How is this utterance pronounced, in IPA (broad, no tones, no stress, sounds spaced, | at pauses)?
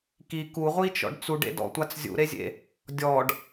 k i k u ʁʷ i t͡ʃ ɔ̰ ɖ t͡s u ɖ ḛ d ɔ̰ tʷ a t͡s zʲ ṵ ɾ e zʲ ḛ | dʲ ɔ ɖ